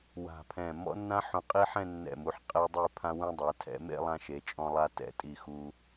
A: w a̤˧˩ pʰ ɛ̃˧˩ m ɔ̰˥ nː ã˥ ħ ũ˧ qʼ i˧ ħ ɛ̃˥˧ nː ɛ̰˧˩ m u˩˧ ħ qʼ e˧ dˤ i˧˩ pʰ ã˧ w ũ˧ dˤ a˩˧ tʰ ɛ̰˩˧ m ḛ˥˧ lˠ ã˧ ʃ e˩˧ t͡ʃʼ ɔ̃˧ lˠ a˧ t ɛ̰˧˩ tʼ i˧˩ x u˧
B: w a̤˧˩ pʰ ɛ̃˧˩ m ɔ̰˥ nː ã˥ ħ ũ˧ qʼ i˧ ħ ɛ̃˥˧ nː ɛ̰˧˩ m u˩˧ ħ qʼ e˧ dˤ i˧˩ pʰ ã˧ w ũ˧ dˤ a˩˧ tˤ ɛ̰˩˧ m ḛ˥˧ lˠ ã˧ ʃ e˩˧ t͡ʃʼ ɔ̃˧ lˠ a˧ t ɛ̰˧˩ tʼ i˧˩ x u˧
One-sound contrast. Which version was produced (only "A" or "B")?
A